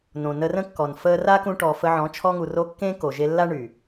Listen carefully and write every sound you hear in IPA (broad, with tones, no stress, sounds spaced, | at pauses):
n õ˨ n ə˧ r ə̃˦ kː ɔ˨ n f əː˧ r a˦ k ũ˧ ʈ ɔ˨ f ə˧ ʕ ɔ̃˨˦ t͡ʃʰ ɔ˧ ŋ u˨ r o˧ kː ẽː˦ k o˨ ʒ e˧ lː a˦ ɳ y˨